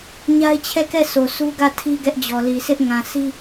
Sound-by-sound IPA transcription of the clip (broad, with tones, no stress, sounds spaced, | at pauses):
ɲ a˦ ɪ̯ t͡ɕʰ ɛ˦˨ k ɛ˦˨ s o˨ sʰ u˦ ɡ ä˦˨ tʰ i˦ ɡ ɛ˦ ʔ d͡ʑ ɔ˨ l i˨ s ɪ˦ ʔ ŋ ã˨ s i˦